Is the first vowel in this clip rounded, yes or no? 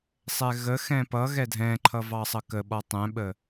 no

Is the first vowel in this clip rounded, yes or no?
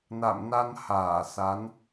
no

